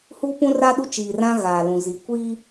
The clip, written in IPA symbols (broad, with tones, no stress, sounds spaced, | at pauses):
h uː˦ p ũ˦ r a˦ ɗ u˦ t͡ʃ iː˨ r ã˦ ɣ aː˨ l ũ˨ z i˨ kʷ i˦